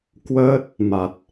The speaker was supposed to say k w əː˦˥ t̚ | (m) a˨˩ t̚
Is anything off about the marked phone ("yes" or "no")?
no